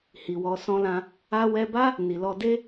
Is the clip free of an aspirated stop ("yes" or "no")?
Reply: yes